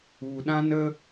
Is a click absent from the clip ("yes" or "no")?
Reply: yes